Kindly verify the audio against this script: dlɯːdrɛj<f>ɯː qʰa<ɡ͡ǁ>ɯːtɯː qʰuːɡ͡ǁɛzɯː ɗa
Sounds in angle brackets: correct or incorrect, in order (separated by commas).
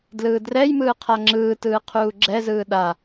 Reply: incorrect, incorrect